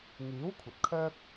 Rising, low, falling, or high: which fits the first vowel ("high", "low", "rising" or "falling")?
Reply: rising